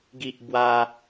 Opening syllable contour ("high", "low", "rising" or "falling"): high